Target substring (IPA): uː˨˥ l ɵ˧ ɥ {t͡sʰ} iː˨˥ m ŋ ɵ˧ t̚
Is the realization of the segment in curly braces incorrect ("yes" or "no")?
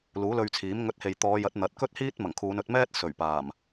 no